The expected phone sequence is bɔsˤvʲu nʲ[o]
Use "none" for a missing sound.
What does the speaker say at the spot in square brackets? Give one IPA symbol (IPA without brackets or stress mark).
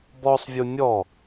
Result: ɔ